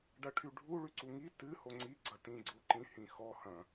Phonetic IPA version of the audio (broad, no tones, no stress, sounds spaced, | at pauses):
ɖ ɐ ʈʰ y ɖʱ u ɭ y ǀ u ŋ i t ɨ h o ŋ͡ǀ i ɡ͡ǀ ɐ t ĩ ɡ͡ǀ o ǃ ĩ h ĩ x ɔ h ɐ̃